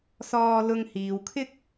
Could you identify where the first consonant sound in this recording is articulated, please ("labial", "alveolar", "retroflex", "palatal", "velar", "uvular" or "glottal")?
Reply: alveolar